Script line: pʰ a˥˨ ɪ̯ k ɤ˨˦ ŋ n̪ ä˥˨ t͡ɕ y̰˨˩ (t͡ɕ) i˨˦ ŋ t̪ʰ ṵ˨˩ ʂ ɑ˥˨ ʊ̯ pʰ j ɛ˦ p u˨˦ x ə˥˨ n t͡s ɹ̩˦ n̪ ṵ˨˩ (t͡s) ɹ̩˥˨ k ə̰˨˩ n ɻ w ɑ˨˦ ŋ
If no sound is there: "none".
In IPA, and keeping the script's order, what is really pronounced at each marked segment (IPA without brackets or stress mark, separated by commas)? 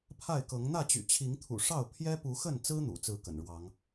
t͡ɕʰ, t͡s